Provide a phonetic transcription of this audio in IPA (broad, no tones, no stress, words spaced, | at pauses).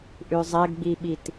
ʔʉzˤɛɡɡ͡biɓit